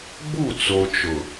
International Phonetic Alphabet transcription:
ɡ͡b u˦˨ t͡s o˨ t͡ʃ ʊ˨

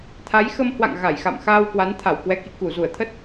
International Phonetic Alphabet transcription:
t̪ʰ a˨˦ j x ə˧ m h w a̰˧˨ ŋ ɣ a˧˩ j x a̰˧˨ m x a˧ w k w a˨˦ n t̪ʰ a˧˩ w k w ɛ˨˦ k ḭ˧˨ k u˧˩ z u˧˩ ə̯ t̪ʰ ə˦˥ t̚

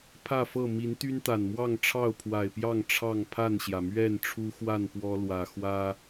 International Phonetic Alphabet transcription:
pʰ ä˥˨ f ɤ˥˨ m i˨˦ n t̪ y˦ n t̪ a˨˩ n m w ɑ˥˨ ŋ ʈ͡ʂʰ ɑ˥˨ ʊ̯ pʰ w a˨˩ ɪ̯ p j ɑ˥˨ ŋ ʈ͡ʂʰ ɑ˥˨ ŋ pʰ a˥˨ n ɕ j ä˩ m ɥ ɛ˥˨ n ʈ͡ʂʰ u˦ x w a˥˨ n p w ɔ˦ l w ä˨˩ x w ä˦

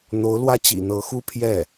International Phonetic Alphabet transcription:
n̪ o˧˥ ʊ̯ l w ä˥ t͡ɕ ḭ˨˩ n̪ ɤ˧˥ x u˥ pʰ j ɛ˥˩

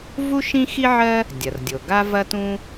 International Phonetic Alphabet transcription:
v u˥ ʃ ĩ˥ x i˥ ʕ ɜ˥ | dʲ ɐ˩ r dʲ o˩ ɡ a˥ v ɐ˥ t ũ˥

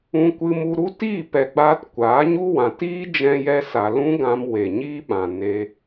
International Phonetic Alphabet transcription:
ũ˧ kʷ ɨ˧ m u˧ ɾ u˦ t iː˦˨ p ɛ˨ ɡ͡b aː˧ t kʷ aː˨˦ ɲ u˦ w ã˨ t iː˦ d͡ʒ ɛ̃˦ j ɛ˦ s a˧ l ũ˦ ɡ ã˧ m w e˨ ɲ iː˦ ɓ ã˨ n e˧

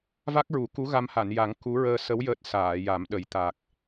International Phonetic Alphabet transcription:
v a˦˥ k̚ ɹ u˨˩˦ k u˧˥ ɣ a˧ m h a˨˩˨ n j a˨˩˦ ŋ k u˧˥ ɹ əː˧ s ə˧˥ w j əː˦˥ t̚ s aː˨˩˨ j a˨˩˦ m ɗ ə˨˩˦ j t̪ a˨˩ k̚

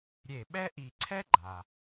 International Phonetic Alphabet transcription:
ɾʲ e˧˩ ɓ ɛ˥ ʔ i˧˩ ǀʰ ɛ˥ ɡ͡ǃ a˩

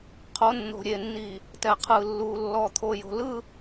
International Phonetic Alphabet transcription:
qʰ o˨˦ nː o̤˨ ɾʲ e˨ nː i˨ | t ɛ˨ qʰ ɯ˨ lː u˨ lː ɔ˨ t̪ʰ o˨ j o̤˨ l ɯ˦

